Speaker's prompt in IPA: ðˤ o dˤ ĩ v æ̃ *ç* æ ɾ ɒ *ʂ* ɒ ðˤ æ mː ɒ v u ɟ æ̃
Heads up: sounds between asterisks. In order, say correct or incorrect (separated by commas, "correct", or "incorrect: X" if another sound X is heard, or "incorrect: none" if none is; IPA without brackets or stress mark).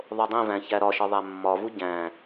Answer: correct, incorrect: ʃ